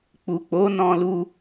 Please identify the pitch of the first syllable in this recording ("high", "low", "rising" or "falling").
low